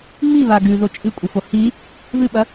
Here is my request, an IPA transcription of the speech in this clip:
ŋ͡m i β a ɡ ʉ ð o t͡ʃʼ ɨ kʷʼ ɨ f o h i | β ɨ ɓ ɐ

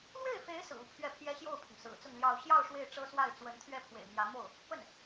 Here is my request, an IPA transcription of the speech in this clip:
l w e˥˩ ɪ̯ f e˧˥ ɪ̯ s ɹ̩˨˩ u˧˥ pʰ ɥ ɛ˥˩ pʰ j ɛ˥ ɕ j o˥˩ ʊ̯ pʰ ʊ˩ ŋ s ɹ̩˨˩ t͡s ʊ˥˧ ŋ l j ɑ˥˧ ʊ̯ ɕ j ɑ˥˧ ʊ̯ ʂ w e˥˩ ɪ̯ ʈ͡ʂ ɤ˥ s w a˥˩ ɪ̯ t͡s w ə˧˥ n t̪ʰ ɥ ɛ˥˩ pʰ w ḛ˨˩ ɪ̯ m j ä˧˥ m o˥˩ ʊ̯ | p ə˥˩ n

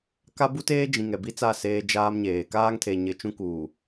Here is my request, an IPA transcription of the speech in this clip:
k a˦ b u˦ t eː˦ d͡ʒ ĩ˨ ŋ ɛ˨ b i˦ t͡s a˦˨ s eː˦ d͡ʒ aː˦ m ɲ eː˨ k aː˦ ŋ tʰ e˨ ɲ ɪ˨ t͡ʃ ũ˦ k uː˨

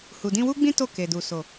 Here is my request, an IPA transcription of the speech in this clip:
h u˨ d ĩ˧ w u˦ ɡ͡b ĩ˦ t o˦˨ k e˨ d u˨ s o˨

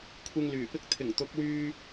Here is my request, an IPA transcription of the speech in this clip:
kʷʰ ɪ˧ ŋ l yː˨˩ p ɪ˧ k̚ t̪ʰ ɪ˨˩ ŋ t̪ ʊ˨˥ k̚ w yː˧

